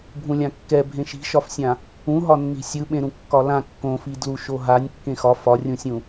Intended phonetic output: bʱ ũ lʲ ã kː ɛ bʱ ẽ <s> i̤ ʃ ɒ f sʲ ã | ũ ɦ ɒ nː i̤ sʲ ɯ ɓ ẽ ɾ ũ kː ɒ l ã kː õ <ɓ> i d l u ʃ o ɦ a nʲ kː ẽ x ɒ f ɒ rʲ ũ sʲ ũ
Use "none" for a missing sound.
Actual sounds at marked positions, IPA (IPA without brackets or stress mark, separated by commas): ʃ, f